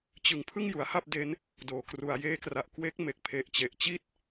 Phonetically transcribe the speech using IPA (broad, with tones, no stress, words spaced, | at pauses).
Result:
t͡ɕɯ˩˦ŋ pʰɯ˥˩ŋju˩˦a̯ha˥˩p̚ de˦˥n | doː˩˦kru˩˦a̯ jeː˦˥kra˨˩ʔ kwe˦˥k̚ me˨˩k̚ pʰe˨˩ʔt͡ɕe˨˩ʔt͡ɕi˥˩t̚